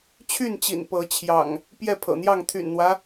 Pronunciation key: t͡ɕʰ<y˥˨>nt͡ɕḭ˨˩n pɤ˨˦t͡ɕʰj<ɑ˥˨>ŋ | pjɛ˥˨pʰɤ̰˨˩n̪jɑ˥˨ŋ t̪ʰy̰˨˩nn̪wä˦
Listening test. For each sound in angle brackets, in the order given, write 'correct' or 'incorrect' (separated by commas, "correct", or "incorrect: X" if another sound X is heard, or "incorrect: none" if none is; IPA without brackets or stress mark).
correct, incorrect: ɑ̰˨˩